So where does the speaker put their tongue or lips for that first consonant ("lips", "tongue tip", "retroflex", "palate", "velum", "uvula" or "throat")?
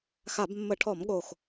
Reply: velum